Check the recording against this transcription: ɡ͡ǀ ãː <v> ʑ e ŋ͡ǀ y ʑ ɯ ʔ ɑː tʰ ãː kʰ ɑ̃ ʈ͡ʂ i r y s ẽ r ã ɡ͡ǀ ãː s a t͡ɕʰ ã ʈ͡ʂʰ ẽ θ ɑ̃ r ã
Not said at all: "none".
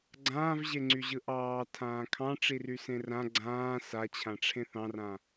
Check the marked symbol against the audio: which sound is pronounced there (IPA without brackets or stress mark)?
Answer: v